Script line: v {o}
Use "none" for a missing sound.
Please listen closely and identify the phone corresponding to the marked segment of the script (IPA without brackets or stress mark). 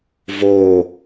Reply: o